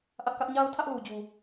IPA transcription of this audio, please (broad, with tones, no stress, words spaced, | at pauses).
ʔä˦ʔkä˦ʔ ɲa˦ʊ̯tʰä˦ʔlu˨d͡ʑu˨